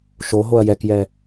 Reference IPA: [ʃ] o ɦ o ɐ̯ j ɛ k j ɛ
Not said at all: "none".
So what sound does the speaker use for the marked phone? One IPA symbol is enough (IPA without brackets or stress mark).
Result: ʃ